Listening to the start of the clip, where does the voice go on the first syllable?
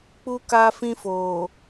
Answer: high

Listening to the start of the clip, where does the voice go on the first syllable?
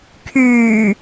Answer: low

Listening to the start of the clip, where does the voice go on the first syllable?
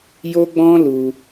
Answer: high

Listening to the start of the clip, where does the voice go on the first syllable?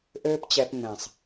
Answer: high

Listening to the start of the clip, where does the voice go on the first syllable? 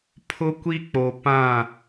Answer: high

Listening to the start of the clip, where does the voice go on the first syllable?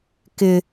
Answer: high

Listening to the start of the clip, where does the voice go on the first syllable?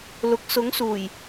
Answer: low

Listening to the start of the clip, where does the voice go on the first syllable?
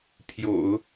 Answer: low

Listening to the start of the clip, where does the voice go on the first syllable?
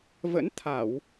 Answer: rising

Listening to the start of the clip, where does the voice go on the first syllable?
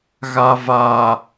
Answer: low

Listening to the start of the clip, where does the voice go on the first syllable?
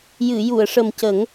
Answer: low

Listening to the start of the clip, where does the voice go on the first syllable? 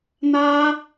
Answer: high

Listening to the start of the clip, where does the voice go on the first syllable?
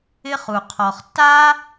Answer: high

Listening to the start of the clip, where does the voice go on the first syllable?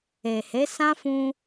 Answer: low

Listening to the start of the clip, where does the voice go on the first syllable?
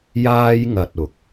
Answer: high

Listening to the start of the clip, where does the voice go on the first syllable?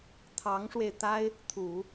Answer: rising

